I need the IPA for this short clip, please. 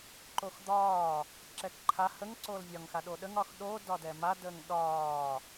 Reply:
ǃ o x d̪ ɒː | ǁ ɛ k ǃʰ a h ə ŋ ǀ oː l vʲ ɒ ŋ x a ɗ o ɗ ə ŋ ɒ x ɗ o d ɒ d ɛ m a d əː ŋ ɗ ɒː

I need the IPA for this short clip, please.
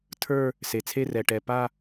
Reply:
tʰ ə˞˥˧ | s e˩ t͡sʰ e˥˧ r ɛ˩ ʈ ɛ˩ p a˥˧

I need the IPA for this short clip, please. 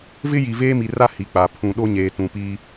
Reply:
v ɪ˦ j i˨ v eː˦ m i˨ r a˦ h i˨ k͡p a˨ pʰ ũ˨ ɗ o˦ ɲ eː˨ t ũ˨ p iː˦

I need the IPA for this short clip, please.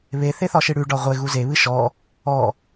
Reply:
β e θ e θ ɒ ʃ ɨ ɽ ʉ ɖ ɒ ʁʷ e ɣ u z e β ɨ ʃ ɔ | ɔ

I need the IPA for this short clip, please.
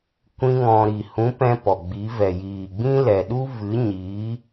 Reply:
kʷ ĩ˦ ŋ ɔ̃˧ ɾ i˨ h ũ˨˦ p ɛ̃˧ p ɔ˨ ɡ͡b i˨˦ v ɛ˨ j iː˨ ɡ͡b ĩ˦ l ɛ˨ ɗ u˦ v ɨ˨˦ ɲ iː˨˦

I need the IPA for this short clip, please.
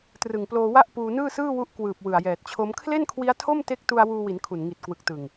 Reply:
t r ɯ˨˩ ŋ p l oː˧ w a˥˩ ʔ p uː˧ n ɯː˥˩ s ɯː˥˩ w u˦˥ ʔ k w ɯː˨˩ p̚ w ɯ˨˩ a̯ j ɛː˨˩ t̚ t͡ɕʰ o˦˥ m kʰ l e˥˩ n kʰ w i˦˥ a̯ tʰ o˥˩ m t e˦˥ k̚ t u˧ a̯ w uː˧ w i˩˦ n kʰ u˨˩ n ŋ i˨˩ t̚ k w ɯ˨˩ k̚ t ɯ˨˩ ŋ

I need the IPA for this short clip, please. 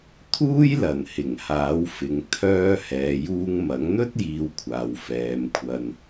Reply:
t̪ʰ uː˥ j l ɐ˨˩ n h ɪ˨˩ ŋ h aː˨˥ w f ɪ˨ ŋ t̪ʰ œː˧ h ɛː˨ j uː˧ ŋ m ɐ˨˥ ŋ n̪ ɵ˥ t̚ j iː˧ w kʷʰ aː˨ w f ɛː˨˧ m kʷʰ ɐ˧ n

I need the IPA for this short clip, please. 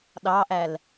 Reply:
ɗ ɑ ʔ æ l

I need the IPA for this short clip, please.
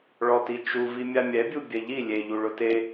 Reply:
ɭ ɔ t i t͡ʃ u v i mʲ a mʲ ɛ bʲ u bʲ ɛ ʎ i lʲ e ʎ u ɭ ʊ t e

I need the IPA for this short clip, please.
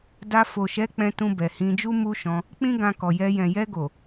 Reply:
d a˧ f o˨ ʃ ɛ˨˦ k͡p ɛ̃˧ t ũ˧ b ɛ˨ h ĩ˧ d͡ʒ u˦ m u˦ ʃ ɔ̃˧ | k͡p ĩ˦ ɡ ã˧ k ɔ˨ j ɛ˧ j ɛ̃˨ j ɛ˧ ɡ o˨

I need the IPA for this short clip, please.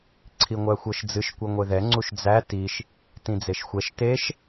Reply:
ǀʰ i ŋʷ æ xʷ ɤ ʃ d͡z ɨ ʃ kʷ ɤ ŋʷ e ð ɛ ŋ͡ǀ u ʃ d͡z æ t i ʃ | t ĩ d͡z e ʃ xʷ ɛ ʃ t e ʃ

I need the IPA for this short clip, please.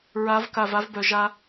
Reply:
ɹ a˨˦ v k a˨ v a˦ v b œ˨ ʒ a˦

